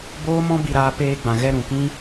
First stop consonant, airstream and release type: plain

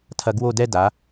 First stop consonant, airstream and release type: aspirated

